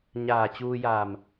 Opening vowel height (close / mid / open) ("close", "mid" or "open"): open